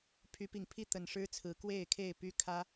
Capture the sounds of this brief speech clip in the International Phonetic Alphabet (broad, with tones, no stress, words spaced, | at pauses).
pʰy˨˦pi˨˩ŋpʰi˥˨ t̪ə˨˩n ʂɻ̩˦t͡sʰɹ̩˨˦ kwe˥˨ɪ̯kʰe˥˨ɪ̯py˦ kʰä˦